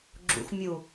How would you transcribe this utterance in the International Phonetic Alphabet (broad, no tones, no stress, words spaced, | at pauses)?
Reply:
ɡ͡ǁṵx mʲu